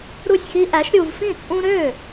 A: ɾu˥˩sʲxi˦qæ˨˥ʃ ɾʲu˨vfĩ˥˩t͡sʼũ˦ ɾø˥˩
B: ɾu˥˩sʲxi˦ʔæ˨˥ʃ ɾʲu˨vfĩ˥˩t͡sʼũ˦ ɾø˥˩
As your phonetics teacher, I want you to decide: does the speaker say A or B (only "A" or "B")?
B